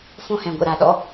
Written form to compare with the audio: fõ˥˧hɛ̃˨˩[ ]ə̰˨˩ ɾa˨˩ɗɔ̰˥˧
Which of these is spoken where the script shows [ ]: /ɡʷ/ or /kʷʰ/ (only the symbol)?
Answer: ɡʷ